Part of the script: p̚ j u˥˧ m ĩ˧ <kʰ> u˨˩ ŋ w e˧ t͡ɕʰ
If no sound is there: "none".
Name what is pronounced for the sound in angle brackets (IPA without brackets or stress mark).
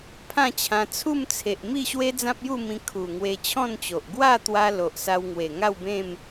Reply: kʰ